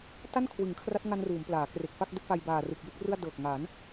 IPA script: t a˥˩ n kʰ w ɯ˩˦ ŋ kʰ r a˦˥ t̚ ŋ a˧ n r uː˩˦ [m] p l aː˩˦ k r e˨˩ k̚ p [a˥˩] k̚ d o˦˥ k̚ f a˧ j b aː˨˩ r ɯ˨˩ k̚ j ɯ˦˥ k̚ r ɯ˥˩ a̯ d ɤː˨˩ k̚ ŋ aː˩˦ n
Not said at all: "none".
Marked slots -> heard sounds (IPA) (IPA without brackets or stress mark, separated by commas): m, a˥˩